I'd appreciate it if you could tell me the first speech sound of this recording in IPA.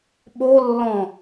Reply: ɓ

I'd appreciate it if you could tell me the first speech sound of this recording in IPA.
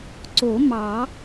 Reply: ǀ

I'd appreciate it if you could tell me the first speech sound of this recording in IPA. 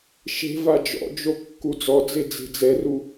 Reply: ʃ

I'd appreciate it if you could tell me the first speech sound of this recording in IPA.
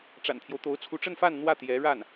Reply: ʈ͡ʂ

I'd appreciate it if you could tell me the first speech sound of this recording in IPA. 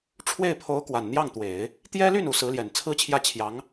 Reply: ʈ͡ʂʰ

